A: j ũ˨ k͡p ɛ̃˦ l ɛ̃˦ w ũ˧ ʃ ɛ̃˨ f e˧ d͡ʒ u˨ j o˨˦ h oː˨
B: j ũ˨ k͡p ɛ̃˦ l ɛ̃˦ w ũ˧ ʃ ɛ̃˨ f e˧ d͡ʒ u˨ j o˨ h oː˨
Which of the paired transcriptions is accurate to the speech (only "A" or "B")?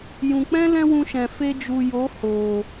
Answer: A